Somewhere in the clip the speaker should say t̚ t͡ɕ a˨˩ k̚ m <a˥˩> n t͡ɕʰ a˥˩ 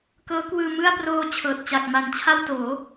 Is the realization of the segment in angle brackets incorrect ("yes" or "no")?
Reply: yes